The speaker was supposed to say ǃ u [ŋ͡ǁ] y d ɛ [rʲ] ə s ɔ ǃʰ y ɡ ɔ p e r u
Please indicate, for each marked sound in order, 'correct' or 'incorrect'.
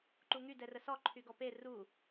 incorrect, incorrect

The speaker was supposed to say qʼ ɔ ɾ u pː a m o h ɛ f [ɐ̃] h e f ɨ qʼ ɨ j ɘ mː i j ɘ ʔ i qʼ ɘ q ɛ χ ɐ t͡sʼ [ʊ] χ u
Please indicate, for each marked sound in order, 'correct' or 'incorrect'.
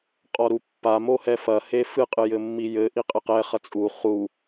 incorrect, incorrect

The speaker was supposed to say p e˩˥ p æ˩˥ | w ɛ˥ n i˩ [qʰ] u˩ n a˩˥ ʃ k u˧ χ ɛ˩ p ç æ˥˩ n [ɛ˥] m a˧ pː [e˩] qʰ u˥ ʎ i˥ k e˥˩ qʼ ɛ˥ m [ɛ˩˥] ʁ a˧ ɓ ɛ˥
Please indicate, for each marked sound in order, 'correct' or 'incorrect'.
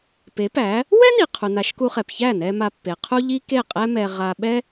correct, incorrect, correct, incorrect

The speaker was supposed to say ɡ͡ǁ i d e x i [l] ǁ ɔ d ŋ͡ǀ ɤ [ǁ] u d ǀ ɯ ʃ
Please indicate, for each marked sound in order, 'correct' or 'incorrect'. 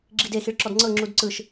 incorrect, incorrect

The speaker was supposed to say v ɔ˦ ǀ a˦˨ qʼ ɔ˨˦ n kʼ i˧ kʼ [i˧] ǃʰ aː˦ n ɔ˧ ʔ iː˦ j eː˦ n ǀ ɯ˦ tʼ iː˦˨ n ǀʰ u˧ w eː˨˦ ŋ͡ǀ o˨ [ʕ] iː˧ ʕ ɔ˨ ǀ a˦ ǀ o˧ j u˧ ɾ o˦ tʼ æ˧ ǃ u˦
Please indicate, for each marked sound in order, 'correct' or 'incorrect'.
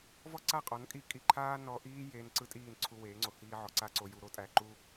correct, incorrect

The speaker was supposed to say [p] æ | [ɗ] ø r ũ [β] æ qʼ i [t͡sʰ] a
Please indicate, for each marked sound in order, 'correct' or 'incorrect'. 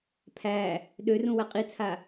incorrect, correct, incorrect, correct

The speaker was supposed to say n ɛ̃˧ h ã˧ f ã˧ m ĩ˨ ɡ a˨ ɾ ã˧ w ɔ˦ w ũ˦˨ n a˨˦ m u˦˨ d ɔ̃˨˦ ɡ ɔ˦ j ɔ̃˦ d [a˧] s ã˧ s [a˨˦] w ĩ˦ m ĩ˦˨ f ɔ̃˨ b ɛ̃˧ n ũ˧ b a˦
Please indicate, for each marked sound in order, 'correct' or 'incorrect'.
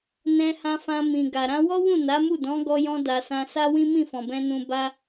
correct, incorrect

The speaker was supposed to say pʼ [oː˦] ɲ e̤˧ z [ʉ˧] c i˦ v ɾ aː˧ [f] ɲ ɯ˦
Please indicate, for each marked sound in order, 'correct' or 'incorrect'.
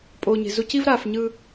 incorrect, incorrect, correct

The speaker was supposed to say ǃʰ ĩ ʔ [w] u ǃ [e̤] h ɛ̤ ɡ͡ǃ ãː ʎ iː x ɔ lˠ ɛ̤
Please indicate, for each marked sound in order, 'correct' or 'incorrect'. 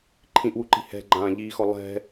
correct, incorrect

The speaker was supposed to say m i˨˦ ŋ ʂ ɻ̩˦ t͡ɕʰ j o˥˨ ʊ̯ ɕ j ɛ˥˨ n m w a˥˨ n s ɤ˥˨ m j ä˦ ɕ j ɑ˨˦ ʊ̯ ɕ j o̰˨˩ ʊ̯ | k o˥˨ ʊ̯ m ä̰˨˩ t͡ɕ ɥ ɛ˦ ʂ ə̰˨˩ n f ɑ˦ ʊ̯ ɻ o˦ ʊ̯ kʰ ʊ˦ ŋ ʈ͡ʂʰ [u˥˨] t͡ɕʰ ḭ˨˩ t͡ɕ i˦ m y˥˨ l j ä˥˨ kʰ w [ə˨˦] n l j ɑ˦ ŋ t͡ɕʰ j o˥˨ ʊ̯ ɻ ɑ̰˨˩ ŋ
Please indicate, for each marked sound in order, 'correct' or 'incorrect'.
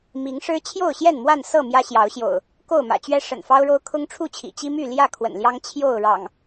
correct, incorrect

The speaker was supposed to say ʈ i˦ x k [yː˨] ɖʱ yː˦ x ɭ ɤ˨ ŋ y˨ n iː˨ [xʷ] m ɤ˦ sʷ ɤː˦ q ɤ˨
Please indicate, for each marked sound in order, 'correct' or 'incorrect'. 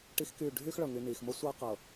incorrect, incorrect

